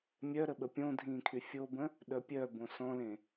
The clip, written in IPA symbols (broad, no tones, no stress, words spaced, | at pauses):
mʲœ ɾəɓəpʲõdʱĩː kʰyfʲobə̃ | ɗœpʲœbõ sɔ̃lẽ